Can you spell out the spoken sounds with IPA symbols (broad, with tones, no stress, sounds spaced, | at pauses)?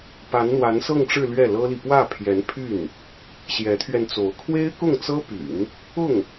p a˧˥ n n̪ w a˧˥ n s ɤ˥˧ ŋ ʈ͡ʂ ɻ̩˥˧ l ɥ ɛ˥˩ l ɤ˥ l i˨ p w ä˥˩ pʰ j ɛ˧˥ n pʰ y˥˩ n | ɕ j ɛ˧˥ t̪ʰ ɥ ɛ˧ n t͡s o˧˥ ʊ̯ kʰ w e˥ ɪ̯ k ʊ˥˩ ŋ t͡s ɤ˥ p y̰˨˩˦ n | ʊ˥˩ ŋ